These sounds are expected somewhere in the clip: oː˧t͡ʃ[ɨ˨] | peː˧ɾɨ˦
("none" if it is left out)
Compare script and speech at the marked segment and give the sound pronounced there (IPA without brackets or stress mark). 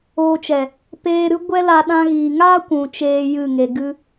ɛ˨